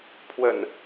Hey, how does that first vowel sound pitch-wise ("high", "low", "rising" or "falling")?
low